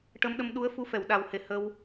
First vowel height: mid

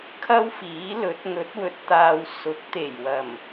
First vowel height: low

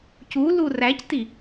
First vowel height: high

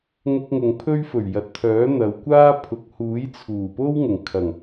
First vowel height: high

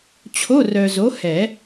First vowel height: mid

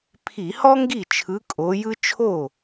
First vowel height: high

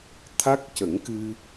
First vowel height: low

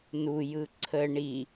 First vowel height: high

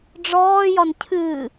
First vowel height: mid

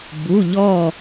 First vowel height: high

